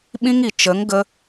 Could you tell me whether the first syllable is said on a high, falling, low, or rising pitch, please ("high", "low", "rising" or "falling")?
high